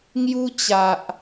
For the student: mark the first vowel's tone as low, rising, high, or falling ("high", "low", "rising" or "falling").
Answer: high